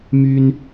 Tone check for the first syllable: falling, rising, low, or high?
high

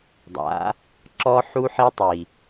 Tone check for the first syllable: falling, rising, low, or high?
rising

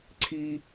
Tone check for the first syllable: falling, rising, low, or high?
high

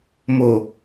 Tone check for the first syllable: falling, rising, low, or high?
low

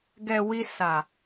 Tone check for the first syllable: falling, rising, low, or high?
low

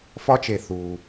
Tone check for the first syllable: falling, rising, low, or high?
high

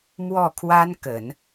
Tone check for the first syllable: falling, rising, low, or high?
falling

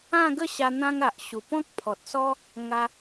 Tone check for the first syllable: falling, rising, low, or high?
falling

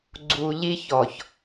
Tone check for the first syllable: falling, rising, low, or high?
low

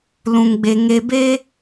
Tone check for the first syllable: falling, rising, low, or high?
low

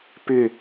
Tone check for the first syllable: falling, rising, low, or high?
falling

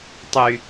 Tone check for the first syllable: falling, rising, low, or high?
low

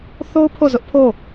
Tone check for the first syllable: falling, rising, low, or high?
high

